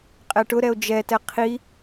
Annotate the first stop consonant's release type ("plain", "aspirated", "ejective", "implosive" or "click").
ejective